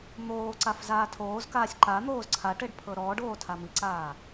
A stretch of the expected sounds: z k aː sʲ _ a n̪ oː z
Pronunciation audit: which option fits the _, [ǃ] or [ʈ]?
ǃ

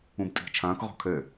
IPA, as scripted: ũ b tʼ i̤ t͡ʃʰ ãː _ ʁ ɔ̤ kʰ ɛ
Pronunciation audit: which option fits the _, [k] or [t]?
k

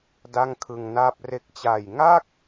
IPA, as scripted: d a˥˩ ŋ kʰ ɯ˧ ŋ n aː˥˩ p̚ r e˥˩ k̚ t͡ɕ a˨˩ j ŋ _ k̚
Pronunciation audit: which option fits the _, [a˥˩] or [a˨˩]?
a˥˩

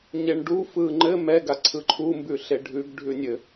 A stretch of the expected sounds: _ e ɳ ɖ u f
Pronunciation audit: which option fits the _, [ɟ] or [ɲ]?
ɲ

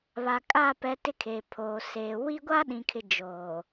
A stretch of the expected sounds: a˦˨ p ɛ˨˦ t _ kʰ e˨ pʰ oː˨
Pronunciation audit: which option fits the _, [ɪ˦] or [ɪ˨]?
ɪ˦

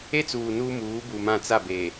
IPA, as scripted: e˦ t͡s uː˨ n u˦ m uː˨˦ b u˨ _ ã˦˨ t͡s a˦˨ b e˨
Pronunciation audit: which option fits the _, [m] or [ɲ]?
m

